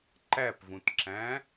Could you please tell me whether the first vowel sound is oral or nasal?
oral